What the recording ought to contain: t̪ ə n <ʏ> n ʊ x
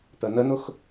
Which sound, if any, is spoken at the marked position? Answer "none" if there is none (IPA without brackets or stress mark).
ə